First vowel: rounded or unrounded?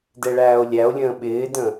unrounded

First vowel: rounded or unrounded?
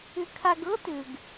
rounded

